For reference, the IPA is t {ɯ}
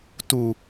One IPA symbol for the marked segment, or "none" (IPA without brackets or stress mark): u